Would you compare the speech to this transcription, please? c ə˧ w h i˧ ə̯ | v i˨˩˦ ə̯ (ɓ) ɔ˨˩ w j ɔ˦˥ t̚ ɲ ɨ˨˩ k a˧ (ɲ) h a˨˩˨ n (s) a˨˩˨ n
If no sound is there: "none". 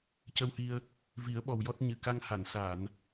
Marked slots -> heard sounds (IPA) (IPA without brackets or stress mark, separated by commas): ɓ, ŋ, s